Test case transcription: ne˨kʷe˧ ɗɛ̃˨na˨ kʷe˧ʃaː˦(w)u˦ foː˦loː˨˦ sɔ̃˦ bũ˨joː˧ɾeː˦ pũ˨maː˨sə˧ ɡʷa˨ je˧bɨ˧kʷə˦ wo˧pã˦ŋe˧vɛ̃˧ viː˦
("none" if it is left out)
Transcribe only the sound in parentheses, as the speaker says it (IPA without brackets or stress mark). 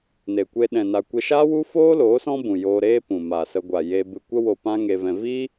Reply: w